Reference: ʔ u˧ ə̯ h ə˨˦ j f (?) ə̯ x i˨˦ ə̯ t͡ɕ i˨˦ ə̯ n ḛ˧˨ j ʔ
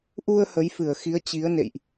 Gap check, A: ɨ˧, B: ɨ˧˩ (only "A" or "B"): B